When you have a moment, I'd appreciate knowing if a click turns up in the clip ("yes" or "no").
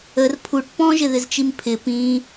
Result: no